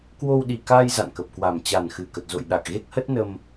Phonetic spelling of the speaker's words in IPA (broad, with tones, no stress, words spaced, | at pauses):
kwo˧wɗi˨˩kaː˧j za̰˧˨nkə˨˩p̚kwa˨˩m t͡ɕa˨˩n xɨ˨˩kə˨˩t̚zo̰˧˨j ɗa˨˩k̚ɣe˦˥k̚hə˦˥t̚ nə˧m